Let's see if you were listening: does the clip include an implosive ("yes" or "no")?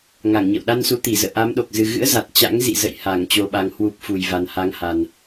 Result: yes